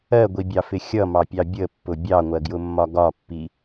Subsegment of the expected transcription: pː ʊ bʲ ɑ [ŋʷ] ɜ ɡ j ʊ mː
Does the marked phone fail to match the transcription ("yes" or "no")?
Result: no